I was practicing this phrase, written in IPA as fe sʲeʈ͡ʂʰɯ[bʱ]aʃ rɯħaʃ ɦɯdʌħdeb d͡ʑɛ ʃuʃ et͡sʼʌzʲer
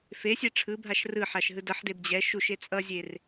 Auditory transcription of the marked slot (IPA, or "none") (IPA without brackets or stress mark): bʱ